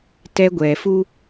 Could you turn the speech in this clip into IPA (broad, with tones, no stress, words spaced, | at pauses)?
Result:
tɛ˦ɡʷɛː˨f u˦